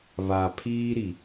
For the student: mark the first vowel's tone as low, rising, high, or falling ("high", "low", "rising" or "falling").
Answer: low